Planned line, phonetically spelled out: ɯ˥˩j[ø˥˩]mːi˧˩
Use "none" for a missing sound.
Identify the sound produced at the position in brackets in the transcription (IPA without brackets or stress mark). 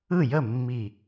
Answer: ə˥˩